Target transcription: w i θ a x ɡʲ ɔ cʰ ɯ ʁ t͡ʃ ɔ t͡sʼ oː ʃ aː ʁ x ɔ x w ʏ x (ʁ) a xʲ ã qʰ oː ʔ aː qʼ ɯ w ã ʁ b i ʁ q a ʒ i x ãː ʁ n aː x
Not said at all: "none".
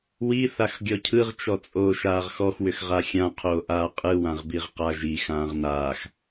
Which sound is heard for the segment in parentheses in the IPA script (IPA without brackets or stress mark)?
ʁ